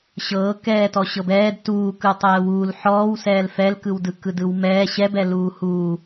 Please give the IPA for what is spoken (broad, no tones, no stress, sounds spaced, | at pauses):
ɕ ɤː k ɛː t ɔ ɕ ɤ b ɛː d t uː k ɯ tˤ ɛː w uː l ħ ɔː w s ɛː l f ɛ l k ɯ w d ɯ k ɯ d ɯ w m ɛː ɕ ɛ b ɛ l uː h u